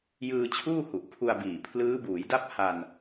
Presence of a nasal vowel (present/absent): absent